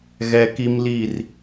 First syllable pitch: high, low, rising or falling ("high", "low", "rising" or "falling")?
high